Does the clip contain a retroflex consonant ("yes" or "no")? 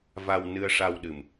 yes